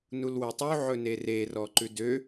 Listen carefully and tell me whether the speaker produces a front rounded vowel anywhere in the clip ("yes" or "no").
yes